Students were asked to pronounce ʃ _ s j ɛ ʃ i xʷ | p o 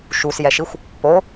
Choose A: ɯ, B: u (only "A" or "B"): B